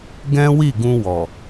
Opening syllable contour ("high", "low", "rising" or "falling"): high